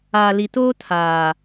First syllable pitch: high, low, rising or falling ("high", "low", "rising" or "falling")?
low